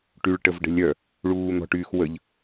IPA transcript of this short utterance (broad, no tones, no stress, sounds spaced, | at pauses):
ʈ y ɭ ʈ ə v ɖ ə̤ lʲ œ | ɭ uː n̪ ɔ̤ ʈ yː x w ə ʎ